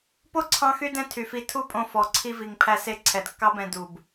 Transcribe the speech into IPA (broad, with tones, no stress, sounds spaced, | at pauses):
p o˦ ǀʰ ɑ̃˧ x y˧ d ɛ̃˧ tʰ y˨ f i˧ tʰ u˦ pʼ õ˧ f ɔ˨ ǀʰ i˧ v i˨ ŋ pʰ æ˧ s e˧ ǀʰ ɛ˨ d kː ɑ˦ b ɛ̃˧ d u˨ b